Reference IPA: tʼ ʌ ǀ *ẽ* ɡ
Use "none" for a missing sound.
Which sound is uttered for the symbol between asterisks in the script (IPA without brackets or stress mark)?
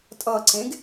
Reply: ẽ